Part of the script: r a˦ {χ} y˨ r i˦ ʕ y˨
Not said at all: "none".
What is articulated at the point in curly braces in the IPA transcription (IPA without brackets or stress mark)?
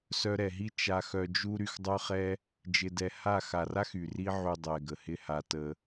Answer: x